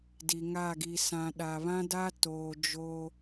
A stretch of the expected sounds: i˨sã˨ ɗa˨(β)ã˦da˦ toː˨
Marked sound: correct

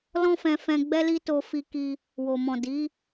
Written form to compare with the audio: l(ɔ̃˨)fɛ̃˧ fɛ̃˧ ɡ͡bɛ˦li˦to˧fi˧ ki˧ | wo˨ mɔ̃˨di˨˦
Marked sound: incorrect: ɔ̃˦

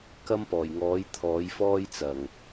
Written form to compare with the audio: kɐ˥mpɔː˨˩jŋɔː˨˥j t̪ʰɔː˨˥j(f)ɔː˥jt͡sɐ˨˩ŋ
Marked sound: correct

